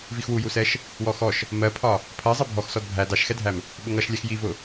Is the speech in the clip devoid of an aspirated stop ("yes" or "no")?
no